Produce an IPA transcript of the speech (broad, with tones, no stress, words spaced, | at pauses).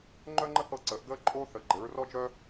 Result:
ŋ͡ǃœ˥ŋ͡ǃə˥hɤ˥˨ ǀəː˧˥ʔɡəː˥ǃʼoː˥ θə˧˥ɡ͡ǃɘ˧˥ɹrɔ˥d͡ʒœ˥